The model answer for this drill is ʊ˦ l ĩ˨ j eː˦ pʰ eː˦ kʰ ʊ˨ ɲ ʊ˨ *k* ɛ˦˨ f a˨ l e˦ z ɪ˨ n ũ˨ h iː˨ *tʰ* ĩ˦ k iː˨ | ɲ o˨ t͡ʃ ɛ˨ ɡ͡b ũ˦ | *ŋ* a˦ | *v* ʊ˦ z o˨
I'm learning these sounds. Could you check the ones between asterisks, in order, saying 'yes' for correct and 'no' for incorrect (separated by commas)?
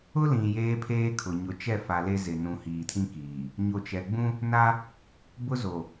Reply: no, yes, no, no